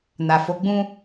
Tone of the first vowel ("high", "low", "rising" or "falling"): low